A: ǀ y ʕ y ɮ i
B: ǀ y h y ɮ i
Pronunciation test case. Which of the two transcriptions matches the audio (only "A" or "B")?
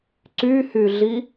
B